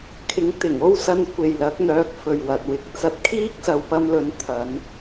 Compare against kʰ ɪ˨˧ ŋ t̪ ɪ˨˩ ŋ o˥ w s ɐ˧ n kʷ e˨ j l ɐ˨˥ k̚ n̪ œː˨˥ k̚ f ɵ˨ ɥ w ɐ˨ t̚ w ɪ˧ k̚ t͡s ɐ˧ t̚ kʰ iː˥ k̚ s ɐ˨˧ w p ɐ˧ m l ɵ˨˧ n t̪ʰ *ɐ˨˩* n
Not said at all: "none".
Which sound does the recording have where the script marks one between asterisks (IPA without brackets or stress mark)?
ɐ˨˧